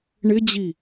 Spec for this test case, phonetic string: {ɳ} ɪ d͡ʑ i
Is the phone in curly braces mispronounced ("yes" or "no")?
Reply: no